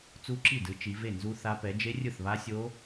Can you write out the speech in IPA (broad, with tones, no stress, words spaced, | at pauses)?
t͡su˦˥ǁi˥˩dɯ˨˦ t͡ʃi˨˦ve˥˩nzu˦˥θa˦˥ pɛ˨˦d͡ʒe˦˥rʲɯ˥˩θβa˦˥ sʲo˦˥